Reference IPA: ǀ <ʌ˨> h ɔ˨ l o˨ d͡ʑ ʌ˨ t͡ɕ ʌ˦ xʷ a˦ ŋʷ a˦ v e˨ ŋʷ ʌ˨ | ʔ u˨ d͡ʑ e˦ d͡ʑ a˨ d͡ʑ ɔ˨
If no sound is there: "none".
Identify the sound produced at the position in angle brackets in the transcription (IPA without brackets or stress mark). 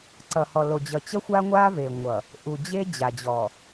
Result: ʌ˨